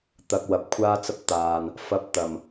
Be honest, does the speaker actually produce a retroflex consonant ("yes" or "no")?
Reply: no